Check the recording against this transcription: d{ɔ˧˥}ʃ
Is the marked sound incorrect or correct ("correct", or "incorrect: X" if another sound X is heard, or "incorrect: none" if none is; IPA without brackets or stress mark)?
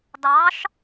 incorrect: ɑ˧˥